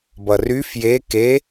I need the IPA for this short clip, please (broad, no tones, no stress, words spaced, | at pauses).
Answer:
bʌry fje ke